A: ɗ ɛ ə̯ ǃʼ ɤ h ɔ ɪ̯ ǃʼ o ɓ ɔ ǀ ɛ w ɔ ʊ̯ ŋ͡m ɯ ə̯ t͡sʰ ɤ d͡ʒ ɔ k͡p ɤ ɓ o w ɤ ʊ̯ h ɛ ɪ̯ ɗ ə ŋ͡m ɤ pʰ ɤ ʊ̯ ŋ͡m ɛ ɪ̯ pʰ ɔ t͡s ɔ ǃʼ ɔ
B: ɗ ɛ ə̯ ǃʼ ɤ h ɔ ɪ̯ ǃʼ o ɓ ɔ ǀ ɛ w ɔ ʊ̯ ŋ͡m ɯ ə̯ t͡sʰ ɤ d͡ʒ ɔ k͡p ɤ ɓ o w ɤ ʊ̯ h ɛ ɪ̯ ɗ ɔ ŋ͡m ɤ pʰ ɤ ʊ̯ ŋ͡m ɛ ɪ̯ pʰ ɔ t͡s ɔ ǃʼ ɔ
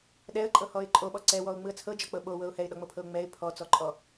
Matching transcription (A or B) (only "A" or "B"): B